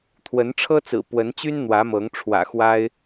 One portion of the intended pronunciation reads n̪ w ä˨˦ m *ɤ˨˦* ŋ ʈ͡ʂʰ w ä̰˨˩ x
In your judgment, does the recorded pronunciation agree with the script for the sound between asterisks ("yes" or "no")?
yes